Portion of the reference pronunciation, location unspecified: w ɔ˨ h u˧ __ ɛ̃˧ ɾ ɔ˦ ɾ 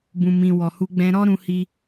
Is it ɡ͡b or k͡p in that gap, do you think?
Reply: ɡ͡b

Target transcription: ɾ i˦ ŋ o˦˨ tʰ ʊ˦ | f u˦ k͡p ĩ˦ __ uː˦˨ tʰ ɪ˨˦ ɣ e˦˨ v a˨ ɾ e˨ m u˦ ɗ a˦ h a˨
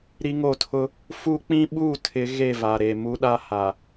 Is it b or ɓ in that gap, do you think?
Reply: ɓ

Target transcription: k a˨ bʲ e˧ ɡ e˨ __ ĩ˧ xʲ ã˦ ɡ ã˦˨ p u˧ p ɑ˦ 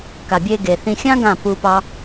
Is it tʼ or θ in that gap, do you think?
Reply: θ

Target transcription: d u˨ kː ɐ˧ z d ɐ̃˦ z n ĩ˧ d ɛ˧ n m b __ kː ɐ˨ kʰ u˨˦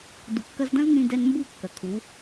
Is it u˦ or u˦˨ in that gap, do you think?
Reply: u˦˨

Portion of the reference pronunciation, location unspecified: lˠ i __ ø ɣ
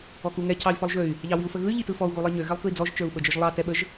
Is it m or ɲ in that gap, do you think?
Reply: ɲ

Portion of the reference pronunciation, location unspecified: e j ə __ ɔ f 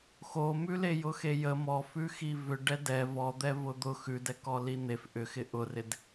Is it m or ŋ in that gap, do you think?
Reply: m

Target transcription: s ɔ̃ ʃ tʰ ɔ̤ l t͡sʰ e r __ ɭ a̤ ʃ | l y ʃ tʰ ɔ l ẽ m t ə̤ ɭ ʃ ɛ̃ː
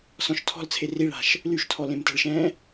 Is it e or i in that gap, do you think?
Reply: i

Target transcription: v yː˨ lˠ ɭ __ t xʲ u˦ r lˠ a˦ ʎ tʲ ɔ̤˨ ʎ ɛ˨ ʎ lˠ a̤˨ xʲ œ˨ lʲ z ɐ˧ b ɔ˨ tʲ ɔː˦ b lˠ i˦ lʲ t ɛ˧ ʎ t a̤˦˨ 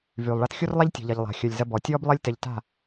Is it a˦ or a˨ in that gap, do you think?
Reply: a˦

